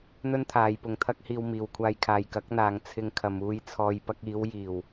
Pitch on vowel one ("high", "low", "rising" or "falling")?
high